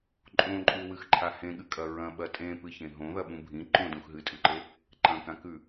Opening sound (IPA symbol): ǃʼ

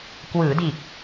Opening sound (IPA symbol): k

